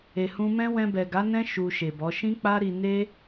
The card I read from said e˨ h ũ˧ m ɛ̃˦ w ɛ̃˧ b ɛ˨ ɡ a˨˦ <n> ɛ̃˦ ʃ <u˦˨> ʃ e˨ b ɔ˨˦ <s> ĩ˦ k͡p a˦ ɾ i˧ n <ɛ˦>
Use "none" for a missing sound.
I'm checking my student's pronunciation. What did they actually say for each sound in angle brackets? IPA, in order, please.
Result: n, u˧, ʃ, e˦

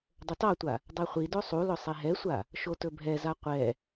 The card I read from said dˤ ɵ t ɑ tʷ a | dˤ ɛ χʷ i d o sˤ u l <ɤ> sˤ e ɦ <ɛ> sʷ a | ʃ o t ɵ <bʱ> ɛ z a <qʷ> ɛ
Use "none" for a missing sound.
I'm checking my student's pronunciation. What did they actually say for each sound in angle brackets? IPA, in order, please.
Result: ɵ, ɛ, bʱ, qʷ

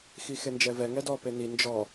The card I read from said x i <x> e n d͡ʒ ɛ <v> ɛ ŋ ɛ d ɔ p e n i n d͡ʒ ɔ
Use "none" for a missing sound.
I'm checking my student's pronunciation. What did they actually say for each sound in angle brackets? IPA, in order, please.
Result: x, v

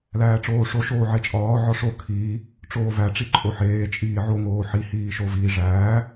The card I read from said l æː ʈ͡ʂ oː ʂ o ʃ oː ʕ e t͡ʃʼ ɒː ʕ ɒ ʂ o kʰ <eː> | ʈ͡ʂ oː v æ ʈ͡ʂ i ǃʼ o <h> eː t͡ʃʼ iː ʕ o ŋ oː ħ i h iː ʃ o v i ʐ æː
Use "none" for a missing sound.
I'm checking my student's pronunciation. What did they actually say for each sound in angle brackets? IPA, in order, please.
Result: iː, ħ

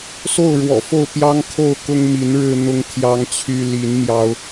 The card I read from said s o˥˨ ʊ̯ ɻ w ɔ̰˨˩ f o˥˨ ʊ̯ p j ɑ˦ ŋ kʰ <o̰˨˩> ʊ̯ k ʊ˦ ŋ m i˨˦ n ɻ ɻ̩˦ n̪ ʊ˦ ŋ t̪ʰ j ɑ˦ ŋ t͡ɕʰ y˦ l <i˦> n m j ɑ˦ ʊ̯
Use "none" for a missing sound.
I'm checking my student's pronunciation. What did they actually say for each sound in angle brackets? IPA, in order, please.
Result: o˥˨, i˨˦

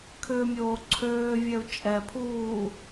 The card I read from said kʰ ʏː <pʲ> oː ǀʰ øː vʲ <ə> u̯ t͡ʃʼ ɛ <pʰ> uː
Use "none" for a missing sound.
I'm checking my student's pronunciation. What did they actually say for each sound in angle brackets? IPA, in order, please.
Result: mʲ, ɛ, pʰ

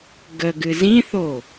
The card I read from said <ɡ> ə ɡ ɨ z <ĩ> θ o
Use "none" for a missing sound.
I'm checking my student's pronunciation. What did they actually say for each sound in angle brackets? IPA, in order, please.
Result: ɡ, ĩ

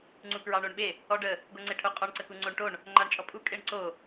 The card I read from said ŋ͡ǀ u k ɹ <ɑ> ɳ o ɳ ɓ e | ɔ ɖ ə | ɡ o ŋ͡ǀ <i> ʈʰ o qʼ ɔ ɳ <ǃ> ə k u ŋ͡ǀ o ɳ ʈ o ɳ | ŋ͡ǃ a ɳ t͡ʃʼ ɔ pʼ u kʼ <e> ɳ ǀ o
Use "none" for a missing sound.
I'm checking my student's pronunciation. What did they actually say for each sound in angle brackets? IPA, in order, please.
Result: ɑ, e, ǀ, e

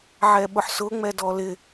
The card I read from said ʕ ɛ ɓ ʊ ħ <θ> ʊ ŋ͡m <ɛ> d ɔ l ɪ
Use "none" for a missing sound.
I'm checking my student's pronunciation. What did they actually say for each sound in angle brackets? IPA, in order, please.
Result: s, ɛ

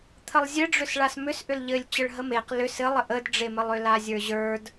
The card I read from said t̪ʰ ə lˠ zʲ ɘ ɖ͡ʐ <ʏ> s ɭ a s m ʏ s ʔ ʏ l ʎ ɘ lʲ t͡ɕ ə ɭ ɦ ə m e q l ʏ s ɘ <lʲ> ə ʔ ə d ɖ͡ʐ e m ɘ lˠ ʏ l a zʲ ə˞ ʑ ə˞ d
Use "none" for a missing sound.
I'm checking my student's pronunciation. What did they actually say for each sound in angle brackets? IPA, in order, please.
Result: ʏ, lˠ

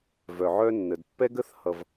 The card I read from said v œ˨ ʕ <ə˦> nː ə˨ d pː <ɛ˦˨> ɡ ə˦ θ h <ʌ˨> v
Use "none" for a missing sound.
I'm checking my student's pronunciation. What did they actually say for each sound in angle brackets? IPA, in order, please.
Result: œ˦, ɛ˦, ʌ˨

